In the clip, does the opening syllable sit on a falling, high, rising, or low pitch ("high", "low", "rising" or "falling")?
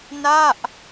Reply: falling